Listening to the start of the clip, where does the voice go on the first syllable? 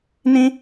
high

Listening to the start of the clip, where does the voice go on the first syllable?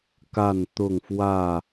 falling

